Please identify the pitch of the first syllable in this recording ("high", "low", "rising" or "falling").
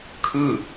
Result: falling